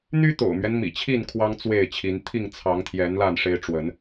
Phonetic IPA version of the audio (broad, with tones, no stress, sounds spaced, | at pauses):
n̪ y˦ t̪ o̰˨˩ ʊ̯ m ɥ ɛ˦ n m ḭ˨˩ t͡ɕʰ i˥˨ n kʰ w ɑ˦ ŋ t͡s w e˥˨ ɪ̯ t͡ɕʰ i˨˦ n t̪ʰ i˥˨ ŋ t͡sʰ ɑ˨˦ ŋ t̪ʰ j ɛ˨˦ n l a˥˨ n ʂ e˦ ɪ̯ ʈ͡ʂ w ə˨˦ n